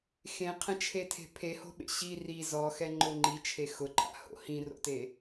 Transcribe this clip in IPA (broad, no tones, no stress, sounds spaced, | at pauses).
x ẽ qʰ ɛ̃ t͡ʃʰ e tʰ e̤ pʰ e h o̤ ɓ ḛ ɕ i r i z ɔ x ɛ ŋ͡ǃ ʊ ŋ͡ǃ i t͡ʃʰ e x ʊ ǃʼ a̰ h o̰ h ĩ r o̰ t e